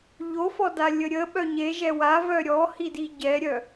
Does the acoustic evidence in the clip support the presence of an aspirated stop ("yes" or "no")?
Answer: no